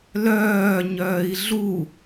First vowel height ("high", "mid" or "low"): mid